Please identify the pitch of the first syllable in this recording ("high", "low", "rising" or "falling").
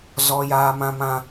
high